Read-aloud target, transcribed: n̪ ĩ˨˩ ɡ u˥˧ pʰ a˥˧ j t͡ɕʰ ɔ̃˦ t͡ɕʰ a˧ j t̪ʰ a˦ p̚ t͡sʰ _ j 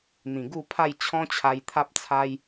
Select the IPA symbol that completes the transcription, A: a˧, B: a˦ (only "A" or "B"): B